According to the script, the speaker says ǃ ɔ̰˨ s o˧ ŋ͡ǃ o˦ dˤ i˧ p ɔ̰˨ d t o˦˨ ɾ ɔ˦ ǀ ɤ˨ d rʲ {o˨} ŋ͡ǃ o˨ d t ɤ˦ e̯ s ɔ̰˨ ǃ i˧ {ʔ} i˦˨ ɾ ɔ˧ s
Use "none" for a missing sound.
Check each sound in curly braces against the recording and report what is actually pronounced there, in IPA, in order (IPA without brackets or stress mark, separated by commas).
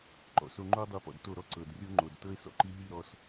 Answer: o˦, ɦ